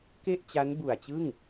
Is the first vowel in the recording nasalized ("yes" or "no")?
no